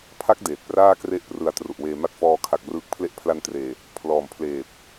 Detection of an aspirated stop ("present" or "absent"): present